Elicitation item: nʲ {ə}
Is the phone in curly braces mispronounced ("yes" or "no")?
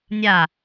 yes